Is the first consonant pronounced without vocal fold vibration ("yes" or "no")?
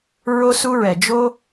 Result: no